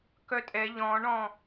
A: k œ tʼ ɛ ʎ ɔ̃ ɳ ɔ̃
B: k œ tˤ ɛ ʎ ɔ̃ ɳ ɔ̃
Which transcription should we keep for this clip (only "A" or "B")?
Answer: A